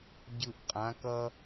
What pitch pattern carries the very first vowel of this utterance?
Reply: low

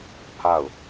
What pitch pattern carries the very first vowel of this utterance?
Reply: falling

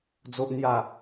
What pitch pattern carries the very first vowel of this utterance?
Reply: high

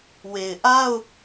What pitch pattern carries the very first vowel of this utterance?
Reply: low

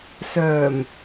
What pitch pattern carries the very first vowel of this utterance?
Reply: low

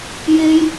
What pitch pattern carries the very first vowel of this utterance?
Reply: high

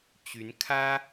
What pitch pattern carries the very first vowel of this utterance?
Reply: rising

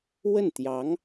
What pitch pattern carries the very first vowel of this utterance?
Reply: falling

